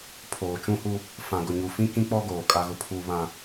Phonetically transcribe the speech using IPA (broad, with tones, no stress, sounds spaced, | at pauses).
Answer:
pʰ oː˨ t͡ʃ ũ˦ h u˦ | f ã˨ ɡ ʊ˨ ɲ u˨ f ĩ˦ k ĩ˦ k͡p ɔ˦ ɡ oː˨ kʼ a˦ ɣ ʊ˦ pʰ uː˦ β ã˦